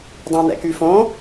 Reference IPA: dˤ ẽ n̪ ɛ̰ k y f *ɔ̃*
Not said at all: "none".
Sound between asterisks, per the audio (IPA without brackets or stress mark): õ